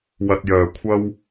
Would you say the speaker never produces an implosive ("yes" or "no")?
yes